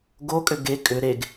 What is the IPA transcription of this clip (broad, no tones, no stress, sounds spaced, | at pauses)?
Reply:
ɡ o kʼ ʏ ɡ e kʼ ʏ ɾ e ɡ